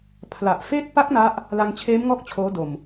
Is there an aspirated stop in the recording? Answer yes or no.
yes